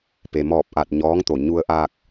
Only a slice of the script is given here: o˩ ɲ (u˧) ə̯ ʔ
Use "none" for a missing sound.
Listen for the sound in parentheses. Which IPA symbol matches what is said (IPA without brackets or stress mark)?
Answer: u˧